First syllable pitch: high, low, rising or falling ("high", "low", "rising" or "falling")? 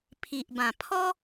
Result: low